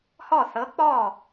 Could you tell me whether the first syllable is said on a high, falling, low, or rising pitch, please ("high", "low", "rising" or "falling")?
falling